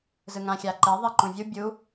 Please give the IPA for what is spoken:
z ɯ ŋ ã xʲ a ǃ e ðˤ e ǃ ũ vʲ u bʲ u

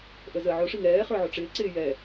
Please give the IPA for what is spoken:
ʔ ə z ə ʕ ʊ ʂ i ŋ ɛː χ ə˞ ʕ ʊ ʈ͡ʂ ɪː ǀ ɪː j ɛ

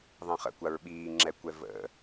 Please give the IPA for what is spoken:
ðˤ ə̃ χ ə̰ kʷ a ɹ ɓ iː ŋ͡ǁ ɛ kʷ ɛ v ə̰

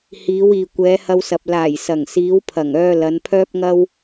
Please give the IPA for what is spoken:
h iː˨˧ w iː˨ kʷ ɛː˨˧ h ɐ˧ w s ɐ˨ p̚ l aː˨˩ j s ɐ˨˩ ŋ s iː˨˧ w pʰ ɐ˨˩ ŋ œː˧ l ɐ˨˧ n pʰ œː˥ p̚ ŋ ɐ˥ w

